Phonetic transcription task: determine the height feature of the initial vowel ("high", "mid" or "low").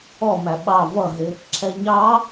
mid